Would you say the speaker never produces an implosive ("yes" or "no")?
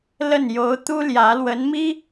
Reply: yes